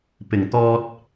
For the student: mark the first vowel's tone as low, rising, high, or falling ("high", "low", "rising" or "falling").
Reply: low